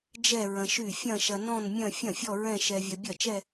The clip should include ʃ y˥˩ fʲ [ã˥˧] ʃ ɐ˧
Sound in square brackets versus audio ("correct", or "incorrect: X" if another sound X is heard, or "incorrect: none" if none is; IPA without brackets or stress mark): incorrect: ɐ̃˥˧